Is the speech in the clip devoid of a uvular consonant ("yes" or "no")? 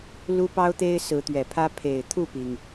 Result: yes